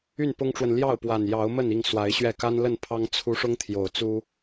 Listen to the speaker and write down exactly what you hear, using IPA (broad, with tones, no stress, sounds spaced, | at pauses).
y˥˨ n p ʊ˦ ŋ ʈ͡ʂ w ə˨ n l j ɑ˥˨ ʊ̯ p w a˨˩ n j ɑ˨˦ ʊ̯ m ə˥˨ n i˥˨ ŋ s w a˨˦ ɪ̯ ɕ ɥ ɛ˥˨ k a˦ n l ə˥˨ n pʰ ɑ˦ ŋ t͡sʰ u˦ ʂ ʊ˦ ŋ t̪ʰ j o˨˩ ʊ̯ t͡s u˦